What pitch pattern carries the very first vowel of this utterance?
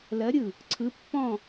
rising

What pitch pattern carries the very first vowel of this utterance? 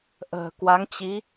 low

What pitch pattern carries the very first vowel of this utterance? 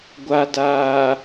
low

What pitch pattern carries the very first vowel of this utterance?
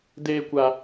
high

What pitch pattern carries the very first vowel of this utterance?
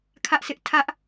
high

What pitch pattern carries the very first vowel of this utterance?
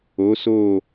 rising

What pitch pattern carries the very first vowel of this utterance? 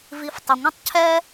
low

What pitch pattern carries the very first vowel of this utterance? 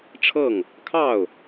falling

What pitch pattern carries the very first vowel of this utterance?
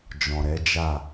low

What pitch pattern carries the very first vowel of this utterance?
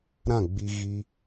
falling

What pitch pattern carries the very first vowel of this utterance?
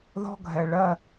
high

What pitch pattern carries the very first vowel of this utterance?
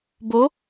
rising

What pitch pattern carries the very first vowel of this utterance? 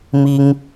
high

